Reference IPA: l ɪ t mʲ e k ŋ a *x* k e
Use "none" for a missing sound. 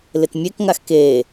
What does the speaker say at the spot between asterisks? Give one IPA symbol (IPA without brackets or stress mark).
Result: x